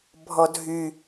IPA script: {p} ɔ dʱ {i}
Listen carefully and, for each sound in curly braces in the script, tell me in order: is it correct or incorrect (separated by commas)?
incorrect, incorrect